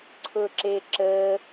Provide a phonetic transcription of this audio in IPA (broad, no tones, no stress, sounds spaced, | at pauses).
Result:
ǀʰ ʊ ǁ e ǁ ə